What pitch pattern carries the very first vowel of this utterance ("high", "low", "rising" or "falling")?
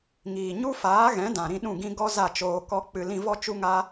low